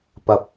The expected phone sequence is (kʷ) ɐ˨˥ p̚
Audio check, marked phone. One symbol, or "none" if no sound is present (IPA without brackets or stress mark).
p